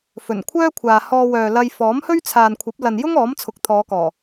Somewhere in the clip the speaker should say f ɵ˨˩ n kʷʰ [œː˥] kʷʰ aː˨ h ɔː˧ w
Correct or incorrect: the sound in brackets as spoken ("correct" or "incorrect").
correct